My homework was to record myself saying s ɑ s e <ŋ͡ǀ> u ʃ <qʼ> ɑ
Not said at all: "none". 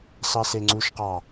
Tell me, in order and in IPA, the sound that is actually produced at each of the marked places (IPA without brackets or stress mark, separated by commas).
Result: ŋ͡ǀ, q